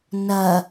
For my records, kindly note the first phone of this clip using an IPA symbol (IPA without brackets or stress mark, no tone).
n